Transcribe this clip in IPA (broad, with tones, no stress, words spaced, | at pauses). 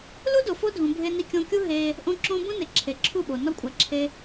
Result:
lu˦do˨ fo˦dʱũ˨ bʱe˧ni˧kʲõ˧kʲu˦ ɦe˧ | ʔõ˦ǁõ˦ bũ˦ne˨ ǁʰe˨ ǁʰu˦˨ɓo˨ nɒ˦kʷʼæ˨ǁʰe˧